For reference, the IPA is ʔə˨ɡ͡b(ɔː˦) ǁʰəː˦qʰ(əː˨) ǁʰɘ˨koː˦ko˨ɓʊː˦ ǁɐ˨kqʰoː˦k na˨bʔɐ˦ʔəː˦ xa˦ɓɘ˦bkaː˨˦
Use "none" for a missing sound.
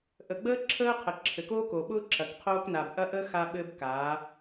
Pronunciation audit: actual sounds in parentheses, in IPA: əː˦, ə˨

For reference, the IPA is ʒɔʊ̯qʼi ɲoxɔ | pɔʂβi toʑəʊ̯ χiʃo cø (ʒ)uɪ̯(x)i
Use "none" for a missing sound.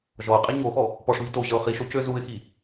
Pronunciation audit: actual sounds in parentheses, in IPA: z, x

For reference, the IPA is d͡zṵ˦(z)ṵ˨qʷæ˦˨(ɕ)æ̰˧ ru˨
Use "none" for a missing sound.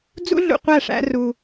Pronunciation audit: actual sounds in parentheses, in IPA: ɮ, ʂ

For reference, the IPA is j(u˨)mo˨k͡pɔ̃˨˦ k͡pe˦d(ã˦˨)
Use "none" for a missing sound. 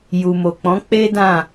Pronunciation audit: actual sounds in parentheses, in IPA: u˨, ã˦˨

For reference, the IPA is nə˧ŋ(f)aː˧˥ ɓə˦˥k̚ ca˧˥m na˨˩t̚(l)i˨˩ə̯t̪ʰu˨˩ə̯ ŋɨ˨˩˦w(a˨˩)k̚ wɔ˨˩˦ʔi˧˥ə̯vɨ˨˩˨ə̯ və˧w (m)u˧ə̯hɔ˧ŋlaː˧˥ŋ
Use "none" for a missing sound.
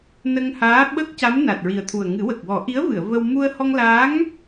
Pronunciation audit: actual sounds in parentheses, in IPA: h, ɹ, ə˨˩, m

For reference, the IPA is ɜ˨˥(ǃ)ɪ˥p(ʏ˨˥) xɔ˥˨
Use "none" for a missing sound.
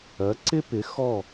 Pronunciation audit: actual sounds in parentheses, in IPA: ǀ, ɪ˨˥

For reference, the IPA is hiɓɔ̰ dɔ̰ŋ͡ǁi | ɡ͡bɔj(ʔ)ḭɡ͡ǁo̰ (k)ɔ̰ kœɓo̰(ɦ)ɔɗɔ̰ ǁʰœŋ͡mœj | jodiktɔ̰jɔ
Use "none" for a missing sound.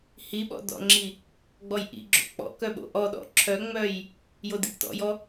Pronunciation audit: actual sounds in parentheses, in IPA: ʔ, k͡p, ʔ

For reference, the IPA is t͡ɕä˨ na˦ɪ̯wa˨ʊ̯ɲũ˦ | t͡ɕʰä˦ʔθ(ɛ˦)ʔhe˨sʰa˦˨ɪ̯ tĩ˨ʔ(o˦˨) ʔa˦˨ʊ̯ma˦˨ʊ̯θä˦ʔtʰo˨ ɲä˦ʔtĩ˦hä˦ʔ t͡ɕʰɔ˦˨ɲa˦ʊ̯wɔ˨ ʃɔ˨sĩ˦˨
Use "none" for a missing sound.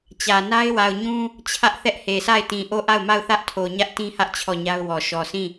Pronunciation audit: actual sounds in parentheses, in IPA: ɛ˦, o˦˨

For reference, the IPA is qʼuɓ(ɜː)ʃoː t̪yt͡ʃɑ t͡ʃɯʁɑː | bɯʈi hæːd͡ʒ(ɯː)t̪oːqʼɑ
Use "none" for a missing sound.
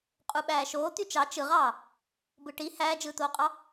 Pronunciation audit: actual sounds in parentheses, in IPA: æː, ɯː

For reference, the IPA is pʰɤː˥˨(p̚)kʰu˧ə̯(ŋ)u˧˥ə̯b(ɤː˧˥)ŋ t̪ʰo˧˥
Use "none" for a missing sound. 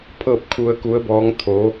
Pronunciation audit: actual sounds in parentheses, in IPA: p̚, k, ɔː˧˥

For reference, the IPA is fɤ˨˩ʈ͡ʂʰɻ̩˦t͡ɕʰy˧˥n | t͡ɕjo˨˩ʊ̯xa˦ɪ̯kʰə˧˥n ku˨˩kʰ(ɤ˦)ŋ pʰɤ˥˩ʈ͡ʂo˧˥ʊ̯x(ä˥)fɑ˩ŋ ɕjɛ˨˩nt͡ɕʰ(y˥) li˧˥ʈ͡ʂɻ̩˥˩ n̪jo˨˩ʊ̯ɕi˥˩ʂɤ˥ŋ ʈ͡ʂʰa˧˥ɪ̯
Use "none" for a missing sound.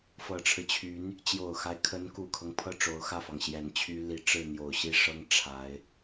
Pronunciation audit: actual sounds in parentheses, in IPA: ɤ˦, ä˥˩, y˥

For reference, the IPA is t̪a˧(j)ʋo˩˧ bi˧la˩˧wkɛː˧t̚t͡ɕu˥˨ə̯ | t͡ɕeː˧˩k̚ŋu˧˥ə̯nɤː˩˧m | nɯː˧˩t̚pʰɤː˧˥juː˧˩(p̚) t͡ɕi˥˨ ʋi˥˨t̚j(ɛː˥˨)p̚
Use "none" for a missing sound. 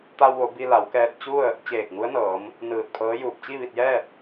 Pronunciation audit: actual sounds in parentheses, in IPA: w, p̚, ɛː˥˨

